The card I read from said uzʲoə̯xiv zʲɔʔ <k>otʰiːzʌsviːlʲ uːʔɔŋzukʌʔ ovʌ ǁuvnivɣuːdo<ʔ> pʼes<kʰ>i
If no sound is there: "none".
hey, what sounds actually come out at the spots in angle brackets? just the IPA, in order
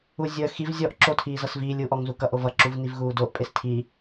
ǁ, ʔ, tʰ

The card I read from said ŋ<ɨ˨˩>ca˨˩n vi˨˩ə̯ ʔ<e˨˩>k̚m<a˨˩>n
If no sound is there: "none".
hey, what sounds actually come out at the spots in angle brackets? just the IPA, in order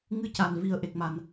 ɨ˧˥, e˨˩, a˨˩

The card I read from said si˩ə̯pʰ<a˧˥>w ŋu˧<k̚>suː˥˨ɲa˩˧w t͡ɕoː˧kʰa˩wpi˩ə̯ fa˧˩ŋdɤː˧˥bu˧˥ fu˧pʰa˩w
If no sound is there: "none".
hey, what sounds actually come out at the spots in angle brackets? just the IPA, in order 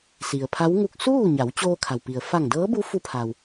a˧˥, k̚

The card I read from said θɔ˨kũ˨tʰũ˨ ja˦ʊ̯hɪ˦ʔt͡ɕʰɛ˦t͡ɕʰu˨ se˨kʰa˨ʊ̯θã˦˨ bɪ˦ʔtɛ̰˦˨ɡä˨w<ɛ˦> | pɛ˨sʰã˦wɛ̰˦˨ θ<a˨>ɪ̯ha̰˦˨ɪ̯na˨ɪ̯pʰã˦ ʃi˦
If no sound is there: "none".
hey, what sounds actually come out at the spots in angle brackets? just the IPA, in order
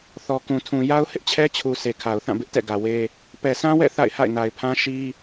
e˦, a̰˦˨

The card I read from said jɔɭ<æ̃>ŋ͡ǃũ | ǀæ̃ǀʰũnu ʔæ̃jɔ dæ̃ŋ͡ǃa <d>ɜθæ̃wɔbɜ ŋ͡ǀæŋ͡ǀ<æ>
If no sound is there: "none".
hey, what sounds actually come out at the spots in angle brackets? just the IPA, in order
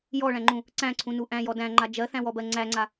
æ̃, d͡ʒ, a

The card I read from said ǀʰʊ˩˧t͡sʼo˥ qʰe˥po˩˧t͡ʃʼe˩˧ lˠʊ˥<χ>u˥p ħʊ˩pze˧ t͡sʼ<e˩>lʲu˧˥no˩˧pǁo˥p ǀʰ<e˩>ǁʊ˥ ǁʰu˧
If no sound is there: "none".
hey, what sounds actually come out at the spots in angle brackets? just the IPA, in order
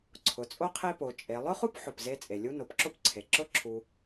χ, e˩, e˩

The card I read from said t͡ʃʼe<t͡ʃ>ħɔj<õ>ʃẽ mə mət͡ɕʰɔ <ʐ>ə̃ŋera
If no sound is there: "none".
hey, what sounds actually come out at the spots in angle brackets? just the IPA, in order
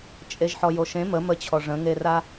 ʒ, o, ʐ

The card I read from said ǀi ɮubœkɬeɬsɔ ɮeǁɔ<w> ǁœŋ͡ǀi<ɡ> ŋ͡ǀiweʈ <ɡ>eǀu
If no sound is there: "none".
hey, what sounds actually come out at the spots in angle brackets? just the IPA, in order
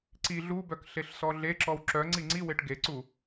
w, none, ɡ

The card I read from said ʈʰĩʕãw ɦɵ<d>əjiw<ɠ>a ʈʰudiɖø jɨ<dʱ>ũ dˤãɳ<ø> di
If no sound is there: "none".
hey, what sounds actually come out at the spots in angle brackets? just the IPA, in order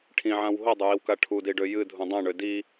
dˤ, k, dʱ, ø

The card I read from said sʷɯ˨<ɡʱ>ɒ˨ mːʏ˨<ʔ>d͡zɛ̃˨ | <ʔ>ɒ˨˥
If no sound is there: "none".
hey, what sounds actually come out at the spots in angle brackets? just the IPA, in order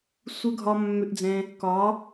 ɡʱ, ʔ, k

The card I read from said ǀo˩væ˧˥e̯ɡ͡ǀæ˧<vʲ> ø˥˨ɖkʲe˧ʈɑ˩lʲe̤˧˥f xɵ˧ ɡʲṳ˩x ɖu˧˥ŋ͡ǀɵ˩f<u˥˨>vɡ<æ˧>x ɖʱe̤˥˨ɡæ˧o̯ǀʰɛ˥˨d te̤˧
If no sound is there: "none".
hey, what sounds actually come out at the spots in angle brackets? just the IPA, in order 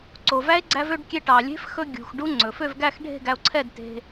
v, ø˥˨, æ˥˨

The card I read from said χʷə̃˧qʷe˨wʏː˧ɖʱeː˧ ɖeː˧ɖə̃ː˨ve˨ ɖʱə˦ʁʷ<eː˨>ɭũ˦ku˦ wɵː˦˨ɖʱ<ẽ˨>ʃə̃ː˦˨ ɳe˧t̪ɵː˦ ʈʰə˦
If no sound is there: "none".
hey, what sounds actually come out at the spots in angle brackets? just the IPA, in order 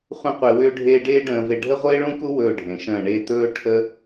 eː˦, ẽ˨

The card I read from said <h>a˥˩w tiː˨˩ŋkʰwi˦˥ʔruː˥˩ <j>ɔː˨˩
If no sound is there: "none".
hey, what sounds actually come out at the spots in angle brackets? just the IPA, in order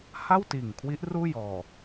h, j

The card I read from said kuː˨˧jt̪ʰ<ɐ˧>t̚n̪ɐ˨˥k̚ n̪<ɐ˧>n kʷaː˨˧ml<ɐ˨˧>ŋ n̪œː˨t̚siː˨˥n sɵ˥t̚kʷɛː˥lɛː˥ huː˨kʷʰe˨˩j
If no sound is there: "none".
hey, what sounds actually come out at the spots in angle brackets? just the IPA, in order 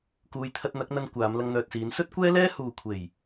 ɐ˧, ɐ˧, ɐ˧

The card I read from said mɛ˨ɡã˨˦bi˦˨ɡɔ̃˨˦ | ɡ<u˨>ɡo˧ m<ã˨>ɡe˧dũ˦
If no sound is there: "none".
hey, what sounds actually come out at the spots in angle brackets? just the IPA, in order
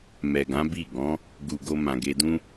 u˨, ã˨

